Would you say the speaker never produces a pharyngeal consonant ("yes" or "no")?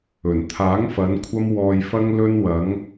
yes